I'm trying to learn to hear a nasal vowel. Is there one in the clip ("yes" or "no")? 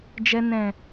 yes